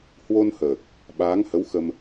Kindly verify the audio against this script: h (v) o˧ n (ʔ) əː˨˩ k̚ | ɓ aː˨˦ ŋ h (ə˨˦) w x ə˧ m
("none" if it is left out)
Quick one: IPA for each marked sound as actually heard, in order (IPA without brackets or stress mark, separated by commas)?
w, h, ə˨˦